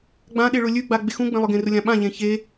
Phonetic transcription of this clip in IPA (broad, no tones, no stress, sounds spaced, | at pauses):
ɡ͡b ã ɗ e ɭ ʊ lʲ ʉ ɡ͡b a ɡ͡b e x ũ ɡ͡b ẽ lˠ ʊ ɡ ẽ r ʊ lʲ ã ɓ ã ʎ ẽ ç e